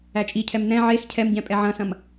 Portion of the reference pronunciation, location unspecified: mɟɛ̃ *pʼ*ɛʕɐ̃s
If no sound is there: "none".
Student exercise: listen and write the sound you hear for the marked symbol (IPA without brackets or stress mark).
pʼ